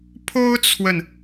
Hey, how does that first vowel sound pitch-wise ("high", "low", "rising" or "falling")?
high